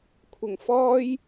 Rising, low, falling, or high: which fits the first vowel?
low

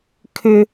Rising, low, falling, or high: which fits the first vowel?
high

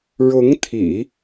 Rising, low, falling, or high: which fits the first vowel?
rising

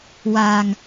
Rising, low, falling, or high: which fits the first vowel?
low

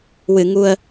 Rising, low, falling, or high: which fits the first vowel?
low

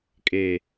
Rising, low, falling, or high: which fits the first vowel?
low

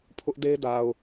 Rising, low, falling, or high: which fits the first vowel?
high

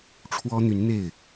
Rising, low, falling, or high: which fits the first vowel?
high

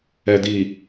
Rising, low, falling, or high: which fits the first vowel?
low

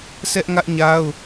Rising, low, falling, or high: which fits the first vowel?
high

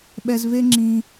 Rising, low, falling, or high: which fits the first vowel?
high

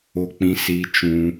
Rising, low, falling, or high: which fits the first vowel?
high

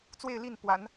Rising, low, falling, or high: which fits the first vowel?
falling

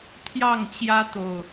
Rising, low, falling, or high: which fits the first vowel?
falling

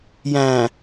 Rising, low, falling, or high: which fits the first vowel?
low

